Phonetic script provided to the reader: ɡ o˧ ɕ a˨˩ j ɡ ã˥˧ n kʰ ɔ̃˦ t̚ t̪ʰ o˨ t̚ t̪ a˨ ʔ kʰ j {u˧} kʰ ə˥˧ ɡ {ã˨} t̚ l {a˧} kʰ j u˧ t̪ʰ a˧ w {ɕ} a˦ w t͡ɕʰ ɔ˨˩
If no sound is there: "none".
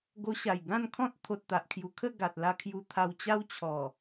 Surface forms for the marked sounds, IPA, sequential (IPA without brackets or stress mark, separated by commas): u˨˩, a˨, a˧, t͡ɕ